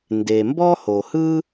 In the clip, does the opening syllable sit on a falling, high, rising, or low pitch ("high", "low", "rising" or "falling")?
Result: low